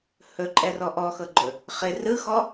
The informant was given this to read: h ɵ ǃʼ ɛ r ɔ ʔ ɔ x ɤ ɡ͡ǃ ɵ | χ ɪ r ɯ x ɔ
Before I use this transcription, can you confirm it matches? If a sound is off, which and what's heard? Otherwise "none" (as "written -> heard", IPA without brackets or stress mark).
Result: none